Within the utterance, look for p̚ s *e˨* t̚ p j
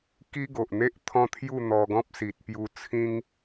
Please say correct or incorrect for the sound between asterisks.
incorrect